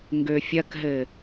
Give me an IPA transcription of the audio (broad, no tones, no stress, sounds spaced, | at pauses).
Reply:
ŋ ɡ ø fʲ ɐ k ɦ ɘ